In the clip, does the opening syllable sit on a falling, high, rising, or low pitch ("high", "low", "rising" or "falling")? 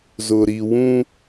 low